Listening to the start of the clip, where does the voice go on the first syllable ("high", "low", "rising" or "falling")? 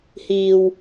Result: low